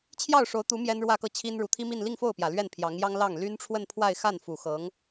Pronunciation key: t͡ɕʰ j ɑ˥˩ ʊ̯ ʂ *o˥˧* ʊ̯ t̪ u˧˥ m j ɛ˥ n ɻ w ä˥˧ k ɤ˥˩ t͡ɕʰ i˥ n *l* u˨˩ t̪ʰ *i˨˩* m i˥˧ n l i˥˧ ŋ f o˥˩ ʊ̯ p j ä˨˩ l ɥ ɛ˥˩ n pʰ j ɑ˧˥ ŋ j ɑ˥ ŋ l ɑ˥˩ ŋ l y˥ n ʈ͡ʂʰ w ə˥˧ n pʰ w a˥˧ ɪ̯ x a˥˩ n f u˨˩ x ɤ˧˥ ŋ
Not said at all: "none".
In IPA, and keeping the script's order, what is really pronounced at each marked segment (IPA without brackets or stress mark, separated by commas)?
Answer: o˧˥, ɻ, i˥